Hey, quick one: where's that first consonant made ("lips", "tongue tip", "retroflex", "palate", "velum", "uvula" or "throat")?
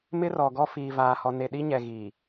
lips